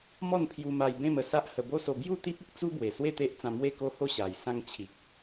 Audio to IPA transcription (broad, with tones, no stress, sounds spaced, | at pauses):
m ɔ˥˧ n pʰ j u˧ m a˧ j b ẽ˥˧ m ə˧ s a˦ ʔ h ə˧ b o˦ s o˧ b j u˥˧ t̪ i˦ p̚ ə˦ k̚ t͡s u˦ b w e˨˩ s w e˥˧ t̪ e˦ ʔ t͡s ã˧ m w e˥˧ k o˦ h o˥˧ ɕ a˨˩ j s ã˧ ŋ t͡ɕʰ i˨ k̚